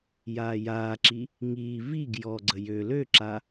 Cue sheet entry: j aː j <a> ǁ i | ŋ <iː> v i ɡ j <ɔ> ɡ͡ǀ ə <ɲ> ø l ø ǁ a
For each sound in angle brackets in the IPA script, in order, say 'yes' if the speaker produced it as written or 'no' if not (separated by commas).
no, yes, yes, no